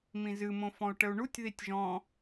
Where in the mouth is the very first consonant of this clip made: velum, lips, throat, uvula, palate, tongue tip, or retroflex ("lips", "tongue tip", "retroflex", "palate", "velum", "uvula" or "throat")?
lips